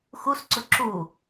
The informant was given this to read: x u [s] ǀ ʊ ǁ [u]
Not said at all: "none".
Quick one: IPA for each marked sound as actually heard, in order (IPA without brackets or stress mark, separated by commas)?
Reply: s, u